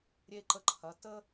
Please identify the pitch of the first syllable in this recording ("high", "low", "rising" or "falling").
high